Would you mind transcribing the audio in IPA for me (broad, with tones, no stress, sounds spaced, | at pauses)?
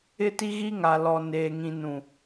ɪ˦ t i˦ ɣ i˦ ŋ a˨ l ɔ˨ n eː˨ ŋ ĩ˨ n ũ˨